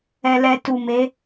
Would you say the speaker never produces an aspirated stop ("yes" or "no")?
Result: yes